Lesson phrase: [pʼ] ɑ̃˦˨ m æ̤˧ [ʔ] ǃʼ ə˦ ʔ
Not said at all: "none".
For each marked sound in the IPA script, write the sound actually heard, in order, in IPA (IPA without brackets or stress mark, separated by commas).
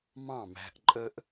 m, ʔ